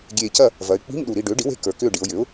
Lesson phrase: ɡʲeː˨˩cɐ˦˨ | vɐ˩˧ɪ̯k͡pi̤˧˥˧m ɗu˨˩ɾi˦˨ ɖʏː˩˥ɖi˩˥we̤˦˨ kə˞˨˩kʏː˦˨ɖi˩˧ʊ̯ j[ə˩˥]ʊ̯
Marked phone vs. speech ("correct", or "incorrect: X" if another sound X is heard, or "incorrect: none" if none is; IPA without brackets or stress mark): incorrect: ʏ˩˥